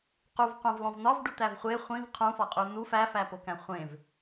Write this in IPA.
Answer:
q u v qʷ æ̃ v lˠ õ v n ɒ v ɖ u t̪ æ v χʷ e χʷ ĩ v qʰ ũ f ɒ qʼ u n u f æ f æ p o k æ̃ χʷ ẽ v

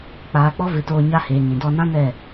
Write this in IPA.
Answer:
k͡p aː˧ k͡p ɔ˦ v ɨ˨˦ t oː˧ ɲ a˧ h eː˨ ŋ ĩ˨ d ɔ˧ n ã˦ n ɛ˦˨

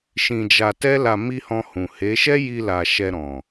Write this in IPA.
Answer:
ʃ ĩ˧ d͡ʒ a˧ t ɛ˦ l a˧ m i˦ h ɔ̃˧ h ũ˨ h e˨˦ ʃ ɛ˦ j i˧ l a˨ ʃ ɛ˧ ɾ ɔ̃˨

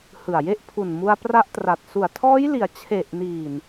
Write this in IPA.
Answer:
h ɯ˨˩ a̯ j e˥˩ ʔ pʰ u˨˩ n m u˧ a̯ p r a˦˥ ʔ t r a˨˩ t̚ s u˨˩ a̯ tʰ ɔː˦˥ j l i˩˦ a̯ t͡ɕʰ e˨˩ ʔ n iː˨˩ n

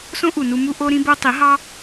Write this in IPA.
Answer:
s õ˦ ʔ u˨ n u˧ m u˧ ʔ o˦ ɾ ĩ˦ b o˦ tˤ i˨˦ ɦ ɑ˦

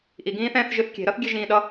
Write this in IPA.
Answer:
ʔ i ɡ ĩː θ ɛ̃ː θ ʒ ɨ θ kʲ e̤ ɾ ʌ θ ɡʲ e ʒ ĩː ɗ ʌ

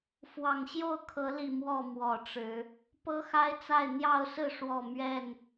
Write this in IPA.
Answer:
f w ɑ˨˩ ŋ ɕ j o˥˨ ʊ̯ kʰ ɤ˨˦ l i˨˩ m w ɔ˥˨ m w ɔ˨˩ ʈ͡ʂ ɻ̩˨˦ | p ɤ˦ x a˦ ɪ̯ t͡s a˥˨ ɪ̯ n̪ j ɑ˥˨ ʊ̯ s ɹ̩˥˨ ʂ w ɔ˥˨ m ɥ ɛ˥˨ n

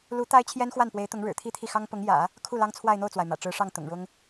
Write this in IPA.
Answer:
l u˧˥ t̪ a˥ ɪ̯ t͡ɕʰ j ɛ˥ n x w a˥˩ n p w e˧˥ ɪ̯ t̪ ʊ˧˥ ŋ ɻ ɻ̩˨˩ t̪ʰ i˥ t̪ʰ i˥˩ x ɑ˥ ŋ p ʊ˧˥ ŋ j ä̰˨˩˦ | kʰ u˥˩ l ɑ˥ ŋ t͡sʰ w a˥˧ ɪ̯ n̪ o˥˩ ʊ̯ t͡s w a˩ ɪ̯ m ä̰˨˩ ʈ͡ʂ ɻ̩˧˥ ʂ ɑ˥˩ ŋ t̪ ʊ̰˨˩ ŋ ɻ ʊ˥ ŋ

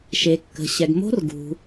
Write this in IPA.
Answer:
ʃ e˨ kː ə̤˨ ɕ ɛ˨ ɡ m o̤˦˥ r ɡ ṳ˨

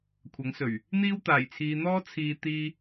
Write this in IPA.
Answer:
kʷʰ ɐ˨˥ ŋ s ɵ˨˩ ɥ | n̪ iː˥ w t̪ aː˨˩ j t͡sʰ iː˨˧ n̪ ɔː˥ t͡sʰ iː˨ t̪ iː˧

